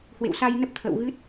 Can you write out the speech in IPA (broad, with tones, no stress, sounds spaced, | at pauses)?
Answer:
h w ḛ˧˨ w s a˧ j n ə˦˥ p̚ t̪ʰ ə̰ː˧˨ w ɣ ɨ˦˥ t̚